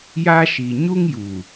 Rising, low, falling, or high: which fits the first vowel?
high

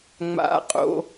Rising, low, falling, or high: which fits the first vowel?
low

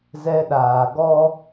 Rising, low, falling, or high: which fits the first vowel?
high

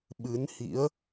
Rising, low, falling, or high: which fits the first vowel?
rising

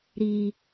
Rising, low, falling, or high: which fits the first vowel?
low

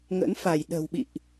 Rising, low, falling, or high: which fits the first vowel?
rising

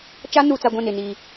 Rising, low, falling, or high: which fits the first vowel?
high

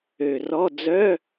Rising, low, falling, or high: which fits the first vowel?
low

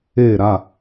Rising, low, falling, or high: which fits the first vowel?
falling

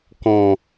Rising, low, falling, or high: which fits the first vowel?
low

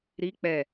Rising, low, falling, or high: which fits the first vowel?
rising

